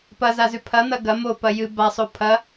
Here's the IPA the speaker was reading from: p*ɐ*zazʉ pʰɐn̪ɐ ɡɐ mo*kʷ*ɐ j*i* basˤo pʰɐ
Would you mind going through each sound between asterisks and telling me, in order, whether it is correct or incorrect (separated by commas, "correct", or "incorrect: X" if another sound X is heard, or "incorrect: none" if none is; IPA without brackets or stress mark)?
correct, incorrect: p, incorrect: ɨ